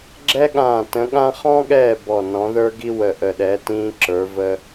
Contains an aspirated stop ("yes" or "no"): no